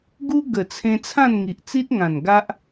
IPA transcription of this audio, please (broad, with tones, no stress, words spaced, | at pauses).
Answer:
ɡu˦ ɡə˨˩t͡sʰẽ˧ t͡sʰã˥˧nŋi˨ʔt͡si˦t̚ŋã˨˩n ɡa˦ʔ